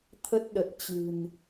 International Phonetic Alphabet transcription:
t̪ʰə˦˥t̚ɗə˨˩t̚ t͡ɕɨ̤˨˩n

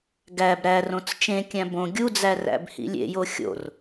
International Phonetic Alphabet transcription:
ɡæb ɾærõt͡s t͡ʃẽkʲæ̃ bõ ɡʲud͡zæ ræ̰bhḭlʲḛjo xʲo̰r

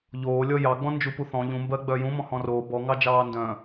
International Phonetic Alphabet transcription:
ʎoː lʲɔjɑɡ͡bɔ̃ nd͡ʒupuθɔ̃ ʎũmbɜ ɡ͡bœjũmɔ̃ hɔ̃roː bɔŋɑd͡ʒɑː ndœ̃

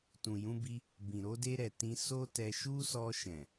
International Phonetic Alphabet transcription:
tũ˨jũ˧bi˧ | bĩ˨ɾo˧de˧ɾɛ˨ tĩ˧ so˦tɛ˧ ʃu˦sɔ˧ ʃɛ̃˨

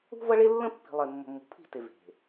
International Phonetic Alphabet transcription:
ṳ˦vʌ˦ɭe˦ lːə̃˦pːi̤˨lˠe˨ mːə̤˨mːṳ˨pʰi̤˦˨te˨ ve̤˨

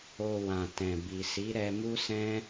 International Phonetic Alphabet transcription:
o˧wã˨tɛ̃˨ bi˨ si˨˦ɾɛ˧mu˦sɛ̃˦

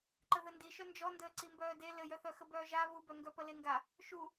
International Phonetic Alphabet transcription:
ǃəðəndiʃœ nd͡ʒɔndəː ǀimbœːde lɘjœθœ xəbœːʒa βubœ ŋɡœpəleŋɡa | ʃu

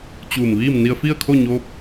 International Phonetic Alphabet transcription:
t͡ɕuː˧˩mʋiː˥˨m ni˧ə̯fi˥˨ə̯kʰo˥˨ɲoː˧˥p̚

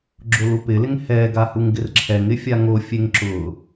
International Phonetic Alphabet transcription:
ɡ͡ǁʊlupɪlɪŋ hɛɡa huŋɡɪrǁʰɛŋɪ fʲaŋofʲeŋ ǁʊ

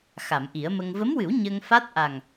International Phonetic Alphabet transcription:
xa˨˩˨mʔi˨˩˦ə̯mə˧ŋ və˧˥mwɨ˨˩˦w ɲə˧ŋfa˦˥t̚ ʔa˨˩ŋ

